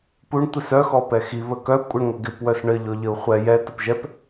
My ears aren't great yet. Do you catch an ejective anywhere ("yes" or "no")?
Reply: yes